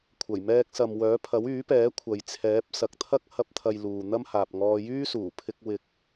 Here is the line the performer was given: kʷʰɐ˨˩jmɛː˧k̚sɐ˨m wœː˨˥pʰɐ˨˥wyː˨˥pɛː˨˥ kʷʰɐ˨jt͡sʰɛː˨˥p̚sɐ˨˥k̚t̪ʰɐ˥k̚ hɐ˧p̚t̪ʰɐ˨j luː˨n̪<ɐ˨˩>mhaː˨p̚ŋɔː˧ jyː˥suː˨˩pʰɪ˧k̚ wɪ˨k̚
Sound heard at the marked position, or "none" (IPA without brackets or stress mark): ɐ˥